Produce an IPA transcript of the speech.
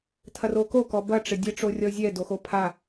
tʰ ɐ r o k o k ɔ b ɐ ʈ͡ʂ ɘ dʲ ɘ ʈ͡ʂ o rʲ ɔ zʲ ɛ d o x o pʰ a

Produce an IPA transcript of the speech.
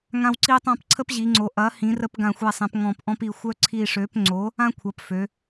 ŋ ã˦ w ǀ i˦ tˤ ã˦ p ǀʰ ə˦ p ʑ i˩˧ ŋ͡ǀ o˩˧ ʔ ɐ˩˥ h ĩ˩˥ r ə˦ p ɡ ã˧˩ xʷ ɛ˧˩ sˤ ɛ̃˩˧ p ŋ ɔ̃˧˩ p ʔ ɔ̃˦ p i˧˩ xʷ œ˦ ǀʰ i˧˩ ʂ ø˩˥ p ŋ͡ǀ o˩˥ | ã˦ kʷʰ ɐ˩˧ p f ø˩˧

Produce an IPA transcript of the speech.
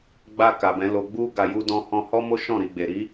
ɡ͡b a˧ k a˨ b ɛ̃˨˦ l o˧ ɡ͡b u˦ ɡ a˧ j u˦ d ɔ̃˦ h ɔ̃˧ h ɔ˦ m o˦ ʃ ɔ̃˦˨ ɾ i˨ ɡ͡b e˨ ɾ i˨˦

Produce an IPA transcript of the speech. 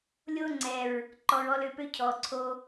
lʲ o˦ ŋ͡ǀ ɛ˨ ɹ | ǃ ɔ˨ ɹ ɔ˧ l ø˧ p ø˦ cʰ ɔ˨ ǀʰ o˧

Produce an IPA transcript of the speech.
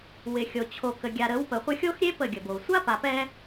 w ɪ˨ xʲ o˨ t͡ɕʰ o˨ k ə˨ ɡʲ a˨ ɾ ə˨˦ w p ə˨ χʷ ɪ˧ xʲ o˦ x ɾʲ e˦ p ə˦˨ ɡʲ ə˨ b o˨ sʷ a˦ p a˨ p ɛ˧

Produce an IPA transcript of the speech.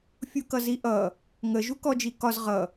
fʲ u k ʌ z i ʔ ʌ | ŋ ə ʒ u k ɔ d͡ʒ i k ɒ z ʁ ʌ

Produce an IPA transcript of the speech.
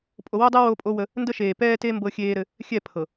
pʼ o˨ w o˦ dˤ ɛ˦ w oː˦ pʼ o˦ w ə˦ | n d ə˦ ʃ eː˨ p ɛː˦ t e˦ m b ɤ˦ xʲ eː˦ ɾ ɘ˦ | xʲ ɛ˦˨ pʰ ɤ˨

